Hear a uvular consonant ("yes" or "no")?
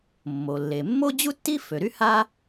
no